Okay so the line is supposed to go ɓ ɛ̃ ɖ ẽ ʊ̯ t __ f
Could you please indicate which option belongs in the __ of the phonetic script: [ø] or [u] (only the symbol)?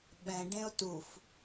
u